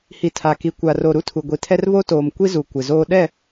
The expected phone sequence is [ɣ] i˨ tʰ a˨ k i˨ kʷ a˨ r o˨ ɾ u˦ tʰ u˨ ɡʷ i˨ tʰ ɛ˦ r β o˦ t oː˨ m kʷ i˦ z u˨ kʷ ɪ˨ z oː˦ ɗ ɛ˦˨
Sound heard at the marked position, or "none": h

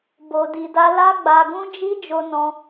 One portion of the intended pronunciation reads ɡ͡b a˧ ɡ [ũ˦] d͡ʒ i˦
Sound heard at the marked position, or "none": ũ˦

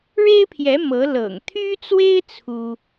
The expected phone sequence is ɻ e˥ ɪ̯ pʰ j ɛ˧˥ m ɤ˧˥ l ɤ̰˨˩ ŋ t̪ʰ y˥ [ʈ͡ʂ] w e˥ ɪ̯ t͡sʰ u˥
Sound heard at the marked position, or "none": t͡s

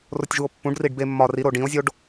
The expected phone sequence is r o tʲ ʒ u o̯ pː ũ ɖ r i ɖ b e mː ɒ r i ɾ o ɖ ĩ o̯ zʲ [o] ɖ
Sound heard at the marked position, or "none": o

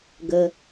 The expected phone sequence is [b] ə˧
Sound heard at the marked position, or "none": ɡ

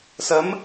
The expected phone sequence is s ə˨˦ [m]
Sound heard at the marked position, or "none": m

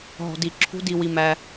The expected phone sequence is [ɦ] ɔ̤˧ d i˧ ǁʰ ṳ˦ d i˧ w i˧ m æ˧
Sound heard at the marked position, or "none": ɦ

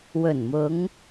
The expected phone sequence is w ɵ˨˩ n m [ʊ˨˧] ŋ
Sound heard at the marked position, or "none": ʊ˨˧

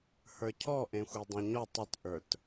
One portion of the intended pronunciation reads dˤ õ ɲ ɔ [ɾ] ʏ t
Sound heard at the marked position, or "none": tˤ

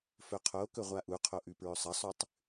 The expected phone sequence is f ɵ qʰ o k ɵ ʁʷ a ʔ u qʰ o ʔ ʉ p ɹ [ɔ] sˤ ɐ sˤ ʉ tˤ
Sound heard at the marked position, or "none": ɵ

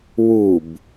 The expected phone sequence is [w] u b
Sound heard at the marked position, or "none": w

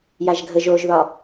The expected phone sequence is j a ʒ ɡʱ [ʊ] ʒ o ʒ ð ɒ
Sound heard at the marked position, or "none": ə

